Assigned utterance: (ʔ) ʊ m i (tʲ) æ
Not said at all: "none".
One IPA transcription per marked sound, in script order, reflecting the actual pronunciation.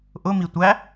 ʔ, tʷ

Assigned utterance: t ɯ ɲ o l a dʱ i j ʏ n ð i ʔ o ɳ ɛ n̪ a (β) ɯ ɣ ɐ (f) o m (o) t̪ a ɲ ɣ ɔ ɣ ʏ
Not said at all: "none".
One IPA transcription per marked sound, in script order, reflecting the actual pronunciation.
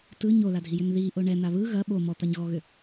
β, ɓ, ɔ

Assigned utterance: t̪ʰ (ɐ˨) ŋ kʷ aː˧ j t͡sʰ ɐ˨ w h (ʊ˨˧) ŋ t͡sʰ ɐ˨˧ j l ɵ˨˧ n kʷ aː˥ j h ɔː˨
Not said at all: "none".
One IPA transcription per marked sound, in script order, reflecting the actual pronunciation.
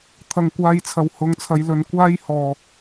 ɐ˨, ʊ˨˧

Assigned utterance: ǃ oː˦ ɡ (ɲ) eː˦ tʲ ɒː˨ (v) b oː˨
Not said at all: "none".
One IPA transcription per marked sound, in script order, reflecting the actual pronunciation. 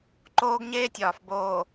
ɲ, f

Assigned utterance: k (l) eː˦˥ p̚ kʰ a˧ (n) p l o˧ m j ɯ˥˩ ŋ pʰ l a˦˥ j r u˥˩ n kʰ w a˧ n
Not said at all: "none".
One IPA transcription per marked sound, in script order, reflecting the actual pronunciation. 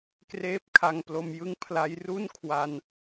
r, ŋ

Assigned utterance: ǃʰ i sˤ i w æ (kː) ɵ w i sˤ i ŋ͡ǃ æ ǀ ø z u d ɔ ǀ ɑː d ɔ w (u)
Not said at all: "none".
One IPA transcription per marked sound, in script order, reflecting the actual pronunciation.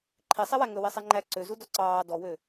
ŋ, ø

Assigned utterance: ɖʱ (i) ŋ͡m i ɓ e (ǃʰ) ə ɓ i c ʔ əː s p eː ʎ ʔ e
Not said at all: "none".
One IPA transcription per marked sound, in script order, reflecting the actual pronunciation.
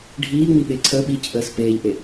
iː, ǀʰ

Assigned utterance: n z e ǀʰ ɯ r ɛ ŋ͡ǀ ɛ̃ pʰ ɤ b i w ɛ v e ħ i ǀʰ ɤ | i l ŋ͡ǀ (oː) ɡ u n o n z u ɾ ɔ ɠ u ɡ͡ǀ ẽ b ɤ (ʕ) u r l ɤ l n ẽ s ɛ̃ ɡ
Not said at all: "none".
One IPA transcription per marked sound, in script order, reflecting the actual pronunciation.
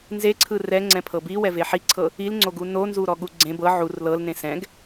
o, ʕ

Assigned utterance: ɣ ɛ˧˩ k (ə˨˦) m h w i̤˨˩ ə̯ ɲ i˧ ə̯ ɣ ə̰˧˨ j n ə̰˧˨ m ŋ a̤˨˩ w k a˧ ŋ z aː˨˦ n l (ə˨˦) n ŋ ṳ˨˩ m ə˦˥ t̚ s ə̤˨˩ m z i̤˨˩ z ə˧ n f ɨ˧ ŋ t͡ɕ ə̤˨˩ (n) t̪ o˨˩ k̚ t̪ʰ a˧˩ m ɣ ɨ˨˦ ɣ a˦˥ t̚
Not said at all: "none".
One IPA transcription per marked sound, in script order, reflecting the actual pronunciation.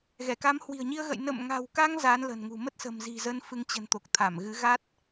a˨˦, ə̤˨˩, n

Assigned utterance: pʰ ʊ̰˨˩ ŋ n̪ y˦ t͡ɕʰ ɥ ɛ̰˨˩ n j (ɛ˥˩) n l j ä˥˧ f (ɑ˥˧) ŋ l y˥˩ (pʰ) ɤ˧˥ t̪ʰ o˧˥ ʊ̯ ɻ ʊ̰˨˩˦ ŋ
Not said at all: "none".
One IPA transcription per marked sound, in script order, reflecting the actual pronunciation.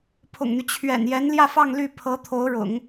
ɛ˧˥, ɑ˥˧, pʰ

